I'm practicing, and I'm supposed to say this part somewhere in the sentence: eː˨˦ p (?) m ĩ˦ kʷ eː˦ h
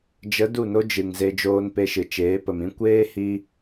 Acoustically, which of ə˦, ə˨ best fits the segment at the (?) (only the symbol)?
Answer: ə˨